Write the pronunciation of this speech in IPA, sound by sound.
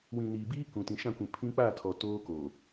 wĩ˨niː˨biː˦ kũ˨ tĩ˨ʃã˦˨kʷĩ˨ pʰĩ˦ k͡paː˦˨tʰɔ˨ toː˦koː˨

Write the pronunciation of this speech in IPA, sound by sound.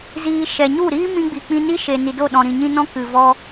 ziː˧ ʃɛ˨ɲu˦˨ ɾiː˦mĩ˧ɡ͡bi˨ k͡pĩ˧ni˦ʃe˨ni˨ do˦˨ɗɔ̃˨ɾĩ˨ ɲĩ˧nɔ̃˧ kɨ˨ vɔ˧

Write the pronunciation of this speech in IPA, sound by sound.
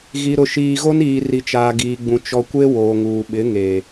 ɣi˨ɾʊ˨ʃiː˨ɣo˦n iː˨ ri˨t͡ʃaː˨ɡiː˨ɡ͡bũ˨ t͡ʃɔ˨kʷe˦ woː˨ŋuː˨ ɓɪ˨˦ŋe˨

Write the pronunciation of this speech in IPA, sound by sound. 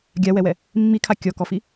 ɡʲawɛwɛ | mːikʰa kʲɔkɔfi

